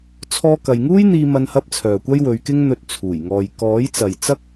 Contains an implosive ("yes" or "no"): no